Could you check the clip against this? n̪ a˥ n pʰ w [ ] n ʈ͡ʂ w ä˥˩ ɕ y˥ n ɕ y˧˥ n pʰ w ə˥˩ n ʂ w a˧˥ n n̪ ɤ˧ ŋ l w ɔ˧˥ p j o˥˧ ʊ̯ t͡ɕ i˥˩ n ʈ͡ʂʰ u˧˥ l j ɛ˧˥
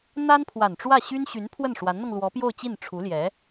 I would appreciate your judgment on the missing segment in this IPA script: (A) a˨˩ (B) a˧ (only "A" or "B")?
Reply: A